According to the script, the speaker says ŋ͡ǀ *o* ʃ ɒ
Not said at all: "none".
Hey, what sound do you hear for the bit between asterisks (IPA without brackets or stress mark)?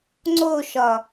o